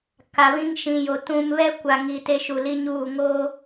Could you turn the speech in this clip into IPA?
ka˨βĩ˦ŋ ʃĩ˨jo˨ tũ˨mβɛ˦ kʷa˨ŋi˨ te˦ʃu˨li˦ɲuː˦˨ ŋoː˦

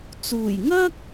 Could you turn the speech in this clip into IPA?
t͡suː˨˩jŋɐ˥k̚

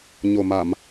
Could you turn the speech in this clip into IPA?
ɲo˨˩ma˧˩˨m

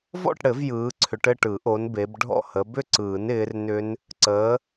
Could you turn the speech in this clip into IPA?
vɔ̰˥˨ʈɽɘ˨˩˦v jɯː˨˦ ǀʰʏ˨˦ʈɘ˥˨ʈɯ˨˩˦ʔo˨˦n be˨˦b ɖʱɔ̰˥˨hə˨˦ bʏ˥˨ǀɯː˨˩˦nɪː˨˦r nʏ˦˥n | ǀəː˨˦

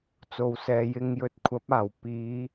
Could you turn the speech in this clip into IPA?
t͡so˨wsɛː˨jɪ˧ŋ jɵ˧t̚kʷʰɐ˨˥p̚aː˨˩w piː˨˧

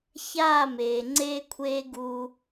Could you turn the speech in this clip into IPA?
çaː˦˨ meː˨ŋ͡ǀeː˦kʷʰeː˦ ɡu˦

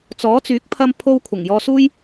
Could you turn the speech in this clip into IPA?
t͡sɔː˨˥t͡syː˨˥k̚ pʰɐ˥mpʰo˥w kʷʰɐ˨˩ŋjɔː˧suː˥j

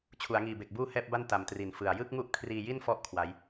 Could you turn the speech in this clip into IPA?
t͡ɕʰu˩˦a̯ŋiː˨˩be˨˩k̚ buː˥˩hɛː˥˩p̚ba˥˩n ta˨˩mtri˨˩n fɯ˨˩a̯ jɯ˥˩k̚ŋu˦˥ʔ kʰriː˧ji˥˩nfɔ˦˥ʔ kʰwa˦˥j

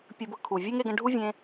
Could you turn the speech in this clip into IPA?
pʲə˞˧bɤ˧kʰu˨ vʲe˦ŋe˧ɡə̃˧ ɖʱu˦vʲẽ˧

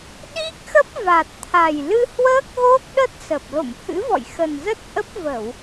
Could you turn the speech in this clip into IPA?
ɗi˦˥k̚xə˦˥p̚ va˨˩t̚t̪ʰa˨˩j lɨ˧hwəː˦˥k̚ɣo˦˥k̚ɗə˦˥t̚ sə˨˩p̚ lo̰˧˨mhɨ̰˧˥ vɔ̰˧˨jxə˨˩nzə˦˥t̚ ʔə˦˥p̚ və˧˩˨w

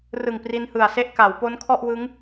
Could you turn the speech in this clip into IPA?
rɯ˨˩ŋ pri˧nhɯ˨˩a̯se˥˩ʔ ka˩˦wpo˦˥nkʰɔ˥˩ʔwɯ˦˥ŋ

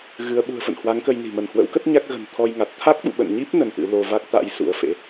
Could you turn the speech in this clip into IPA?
ɣɨ˨˦ə̯ɓṳ˨˩ə̯fə̰˧˨n hwa˨˦ŋkə˧jni̤˨˩ mə˧˩nhwə̰˧˥wkə˦˥t̚ ɲa˦˥k̚ɣə̤˨˩n t̪ʰɔ˧jŋa˨˩t̚ t̪ʰa˦˥k̚ɓṵ˧˨ɓə̰˧˨nɲi˦˥p̚ nə˧nt̪ɨ̰˧˥ lo˧ va˦˥k̚t̪a̰˧˥j sṵ˧˥ə̯fḛ˧˥

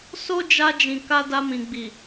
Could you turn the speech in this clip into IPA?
so˦d͡ʒa˧d͡ʒĩ˨ka˧ da˧mĩ˨ɡ͡bi˨

